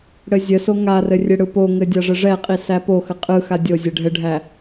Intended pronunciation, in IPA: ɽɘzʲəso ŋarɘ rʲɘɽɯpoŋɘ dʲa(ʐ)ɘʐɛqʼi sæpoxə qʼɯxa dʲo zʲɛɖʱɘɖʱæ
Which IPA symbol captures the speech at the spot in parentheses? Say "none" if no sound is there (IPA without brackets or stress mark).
ʐ